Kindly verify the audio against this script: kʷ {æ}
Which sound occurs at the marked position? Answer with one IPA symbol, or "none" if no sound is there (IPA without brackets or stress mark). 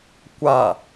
a